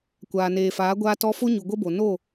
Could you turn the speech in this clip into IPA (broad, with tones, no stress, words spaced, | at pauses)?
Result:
kʷaː˨neː˨faː˨˦ ɡʷaː˦tɔ˦ fo˦ɲu˨ ɡʷə˦bo˨ no˦˨